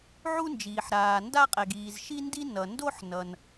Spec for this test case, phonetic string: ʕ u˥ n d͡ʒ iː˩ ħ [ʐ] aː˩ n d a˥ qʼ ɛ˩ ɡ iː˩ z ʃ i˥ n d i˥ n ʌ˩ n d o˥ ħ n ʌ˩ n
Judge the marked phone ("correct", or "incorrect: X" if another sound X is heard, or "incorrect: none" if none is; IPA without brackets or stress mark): incorrect: ɾ